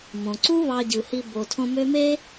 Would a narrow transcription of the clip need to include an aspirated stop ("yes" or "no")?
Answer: yes